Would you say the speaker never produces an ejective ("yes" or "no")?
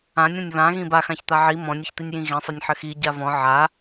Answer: yes